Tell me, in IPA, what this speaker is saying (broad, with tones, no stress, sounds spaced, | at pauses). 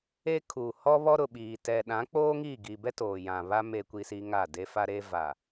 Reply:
e˦ kʰ uː˨ h ɔ˦ β ɔ˦ ɾ ʊ˨ ɓ iː˨ t ɛ˨ ɗ ã˨˦ k͡p oː˦ ŋ i˦˨ ɡ i˨ b ɛ˦ t oː˨ j ã˨ β a˦ m e˦ kʷ i˦ s i˦ ŋ a˦˨ d e˦ f a˦ ɾ e˦ v a˨